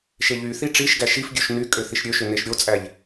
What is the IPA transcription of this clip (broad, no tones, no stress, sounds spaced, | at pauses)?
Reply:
ʃ e ʎ y θ i ʈ͡ʂ i ʃ ɡ æ ʃ i f ɡʲ ø ʃ n y kʼ ø θ i ʃ ɾʲ ø ʃ ø n e ʃ ɾʲ o t͡sʼ æ ʎ